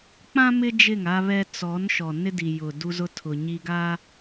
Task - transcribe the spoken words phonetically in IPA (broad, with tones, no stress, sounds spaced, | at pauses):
k͡p ã˦ m ɪ˦ d͡ʒ ɪ˦˨ ŋ a˦ β ɛ˦ t͡s ɔ˨˦ n ʃ ɔ˨ n ɪ˦ d i˨ j ʊ˨ d u˦ z ʊ˦ tʰ ʊ˨ ɲ i˦ ɡ a˦